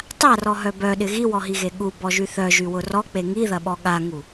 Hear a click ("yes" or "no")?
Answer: no